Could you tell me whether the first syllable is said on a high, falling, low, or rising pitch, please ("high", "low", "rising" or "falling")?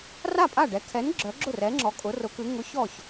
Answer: falling